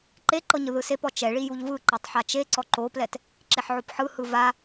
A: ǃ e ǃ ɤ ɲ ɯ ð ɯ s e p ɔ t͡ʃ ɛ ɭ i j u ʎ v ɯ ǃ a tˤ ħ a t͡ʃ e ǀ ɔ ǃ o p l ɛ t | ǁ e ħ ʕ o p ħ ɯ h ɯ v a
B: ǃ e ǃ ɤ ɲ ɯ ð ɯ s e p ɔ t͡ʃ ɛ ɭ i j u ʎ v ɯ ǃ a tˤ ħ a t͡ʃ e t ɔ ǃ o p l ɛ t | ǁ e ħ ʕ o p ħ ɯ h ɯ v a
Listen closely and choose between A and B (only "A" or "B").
A